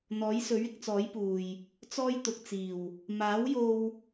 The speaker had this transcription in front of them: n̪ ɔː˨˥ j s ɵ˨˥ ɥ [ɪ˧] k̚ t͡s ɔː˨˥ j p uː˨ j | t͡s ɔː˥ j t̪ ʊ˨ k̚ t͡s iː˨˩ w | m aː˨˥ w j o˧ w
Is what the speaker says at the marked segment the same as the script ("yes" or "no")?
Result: yes